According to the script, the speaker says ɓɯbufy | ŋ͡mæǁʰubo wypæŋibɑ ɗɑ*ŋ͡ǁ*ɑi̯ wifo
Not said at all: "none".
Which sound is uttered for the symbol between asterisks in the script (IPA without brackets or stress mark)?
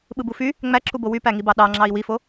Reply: ŋ͡ǁ